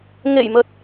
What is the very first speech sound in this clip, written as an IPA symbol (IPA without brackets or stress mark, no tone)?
ŋ